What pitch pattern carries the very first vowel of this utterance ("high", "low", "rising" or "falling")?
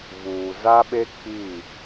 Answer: low